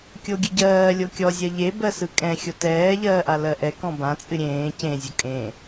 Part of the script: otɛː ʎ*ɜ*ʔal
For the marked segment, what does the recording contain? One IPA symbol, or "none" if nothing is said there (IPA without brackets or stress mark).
ɜː